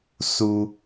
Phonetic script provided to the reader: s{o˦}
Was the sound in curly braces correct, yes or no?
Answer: no